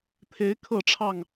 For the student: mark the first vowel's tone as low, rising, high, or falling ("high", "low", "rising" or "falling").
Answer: rising